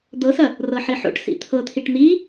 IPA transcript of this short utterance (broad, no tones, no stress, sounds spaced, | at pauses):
d̪ ɤ s ɐ | r ɤ ħ i ħ o̰ ʈ s ḭ t̪ʰ ɤ t̪ʰ i ʈ n̪ i